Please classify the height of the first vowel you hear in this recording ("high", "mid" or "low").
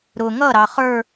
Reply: high